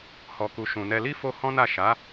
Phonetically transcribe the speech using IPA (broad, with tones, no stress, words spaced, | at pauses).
hɔ˨ku˨ʃũ˨nɛ˧ li˦fo˧ hɔ̃˦na˦˨ ʃa˨˦